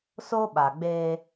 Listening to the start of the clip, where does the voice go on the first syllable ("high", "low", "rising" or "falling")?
high